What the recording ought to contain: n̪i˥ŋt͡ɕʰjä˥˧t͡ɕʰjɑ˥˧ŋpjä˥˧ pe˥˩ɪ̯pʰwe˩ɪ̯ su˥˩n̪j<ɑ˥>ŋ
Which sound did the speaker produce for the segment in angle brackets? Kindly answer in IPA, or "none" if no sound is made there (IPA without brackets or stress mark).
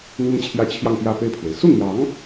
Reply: ɑ˧˥